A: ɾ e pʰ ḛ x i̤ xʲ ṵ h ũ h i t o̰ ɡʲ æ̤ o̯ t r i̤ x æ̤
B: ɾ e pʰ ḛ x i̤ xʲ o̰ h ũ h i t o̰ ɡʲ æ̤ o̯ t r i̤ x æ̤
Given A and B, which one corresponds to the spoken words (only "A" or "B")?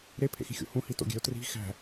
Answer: B